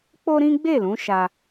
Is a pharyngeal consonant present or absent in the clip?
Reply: absent